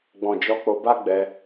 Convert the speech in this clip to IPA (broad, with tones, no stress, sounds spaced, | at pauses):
ɡ͡b ɔ̃˨ d͡ʒ ɔ˨˦ k͡p o˧ b a˦ ɡ͡b ɛ˧